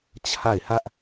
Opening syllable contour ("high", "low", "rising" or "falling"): falling